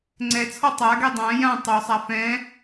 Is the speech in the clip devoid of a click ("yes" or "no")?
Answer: no